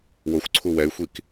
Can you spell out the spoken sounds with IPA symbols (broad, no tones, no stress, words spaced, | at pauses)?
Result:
woxʷǀʰu wɛy̯xʷik